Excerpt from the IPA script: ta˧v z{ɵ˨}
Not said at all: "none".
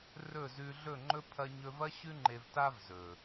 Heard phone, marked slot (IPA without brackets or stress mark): ɵ˨